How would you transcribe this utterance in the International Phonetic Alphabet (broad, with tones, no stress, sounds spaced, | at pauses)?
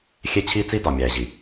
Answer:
xʲ e˦ t͡ɕʰ i˦ t͡s i˦ d ɒ˨ mʲ æː˨ ʑ i˨